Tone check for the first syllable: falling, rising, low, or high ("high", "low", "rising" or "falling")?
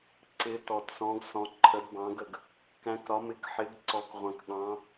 rising